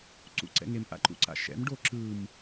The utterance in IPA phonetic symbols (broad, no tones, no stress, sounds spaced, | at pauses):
ǀ ṵ ǀ ɛ̰ ŋ e m ʔ a̰ ǃ ṵ ǀ a̰ ʃ ɛ̰ m ɖ o ǁ ɯ m